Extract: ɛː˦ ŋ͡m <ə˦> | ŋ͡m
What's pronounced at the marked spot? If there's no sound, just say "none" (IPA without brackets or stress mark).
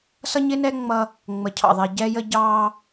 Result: ʌ˦